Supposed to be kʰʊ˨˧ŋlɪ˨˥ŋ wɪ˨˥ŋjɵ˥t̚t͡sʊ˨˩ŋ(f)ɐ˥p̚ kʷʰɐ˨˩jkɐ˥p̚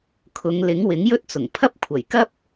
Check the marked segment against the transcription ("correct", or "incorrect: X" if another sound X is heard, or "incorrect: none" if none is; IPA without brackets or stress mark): incorrect: pʰ